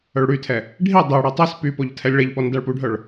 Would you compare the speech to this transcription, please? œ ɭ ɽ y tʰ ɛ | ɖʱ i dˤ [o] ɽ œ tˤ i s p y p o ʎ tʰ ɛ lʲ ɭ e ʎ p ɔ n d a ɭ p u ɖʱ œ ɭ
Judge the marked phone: correct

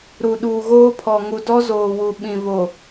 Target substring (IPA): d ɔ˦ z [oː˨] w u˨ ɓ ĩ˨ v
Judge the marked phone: correct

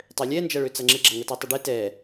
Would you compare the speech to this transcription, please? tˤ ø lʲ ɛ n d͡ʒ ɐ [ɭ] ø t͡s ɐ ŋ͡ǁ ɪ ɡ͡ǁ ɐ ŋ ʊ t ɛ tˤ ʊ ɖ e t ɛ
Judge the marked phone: correct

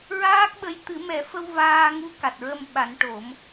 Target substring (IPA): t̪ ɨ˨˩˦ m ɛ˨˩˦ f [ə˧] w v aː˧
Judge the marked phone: correct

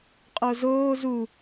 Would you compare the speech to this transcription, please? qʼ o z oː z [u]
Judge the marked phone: correct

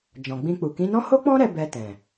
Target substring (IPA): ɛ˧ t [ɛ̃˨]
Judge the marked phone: correct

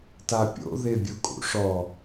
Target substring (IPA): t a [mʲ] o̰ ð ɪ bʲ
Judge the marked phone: incorrect: pʲ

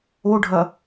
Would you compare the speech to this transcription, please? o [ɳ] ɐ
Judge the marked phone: incorrect: ɖʱ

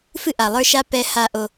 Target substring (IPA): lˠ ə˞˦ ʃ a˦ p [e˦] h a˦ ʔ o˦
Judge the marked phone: incorrect: ɛ˦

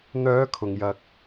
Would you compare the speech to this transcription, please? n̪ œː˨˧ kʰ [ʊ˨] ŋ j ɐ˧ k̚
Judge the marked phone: correct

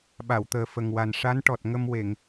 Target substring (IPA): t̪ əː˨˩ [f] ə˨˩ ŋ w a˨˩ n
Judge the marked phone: correct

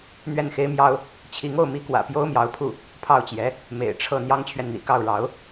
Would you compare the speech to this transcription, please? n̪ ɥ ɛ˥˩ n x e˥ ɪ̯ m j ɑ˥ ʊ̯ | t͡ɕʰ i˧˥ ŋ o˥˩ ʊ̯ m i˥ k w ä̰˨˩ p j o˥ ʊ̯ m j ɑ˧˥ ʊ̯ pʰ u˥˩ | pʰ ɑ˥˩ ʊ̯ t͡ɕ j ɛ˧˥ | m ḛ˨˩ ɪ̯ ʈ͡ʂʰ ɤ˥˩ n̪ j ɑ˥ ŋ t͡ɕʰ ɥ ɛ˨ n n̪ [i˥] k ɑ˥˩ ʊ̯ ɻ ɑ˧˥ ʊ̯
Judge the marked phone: incorrect: ḭ˨˩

